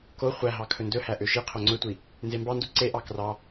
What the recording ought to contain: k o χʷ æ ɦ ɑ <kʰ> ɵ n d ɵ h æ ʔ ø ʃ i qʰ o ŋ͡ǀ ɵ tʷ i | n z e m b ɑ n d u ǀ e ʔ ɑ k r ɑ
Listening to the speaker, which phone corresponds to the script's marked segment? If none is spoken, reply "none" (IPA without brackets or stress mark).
kʰ